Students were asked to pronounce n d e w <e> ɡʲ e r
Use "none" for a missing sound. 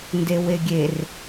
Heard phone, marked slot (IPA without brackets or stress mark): e